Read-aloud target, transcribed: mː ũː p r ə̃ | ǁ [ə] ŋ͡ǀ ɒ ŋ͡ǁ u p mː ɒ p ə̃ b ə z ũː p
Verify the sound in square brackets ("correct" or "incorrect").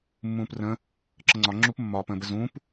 correct